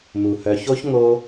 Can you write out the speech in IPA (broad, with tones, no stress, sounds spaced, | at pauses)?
m u˩ h œ˨ ç o˥ ç ŋ o˥